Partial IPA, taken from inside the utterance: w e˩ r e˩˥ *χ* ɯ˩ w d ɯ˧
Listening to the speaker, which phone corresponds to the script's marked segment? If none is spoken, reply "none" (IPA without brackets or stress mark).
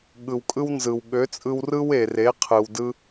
qʰ